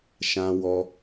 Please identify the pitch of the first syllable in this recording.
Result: low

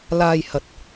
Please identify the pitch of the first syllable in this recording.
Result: low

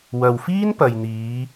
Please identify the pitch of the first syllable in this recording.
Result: low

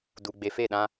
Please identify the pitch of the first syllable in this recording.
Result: low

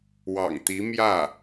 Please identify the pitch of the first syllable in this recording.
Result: low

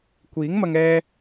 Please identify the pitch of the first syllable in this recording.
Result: rising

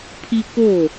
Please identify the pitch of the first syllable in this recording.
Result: high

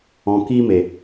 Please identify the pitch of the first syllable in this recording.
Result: low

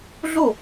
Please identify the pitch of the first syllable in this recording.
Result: falling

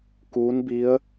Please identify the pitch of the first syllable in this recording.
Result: rising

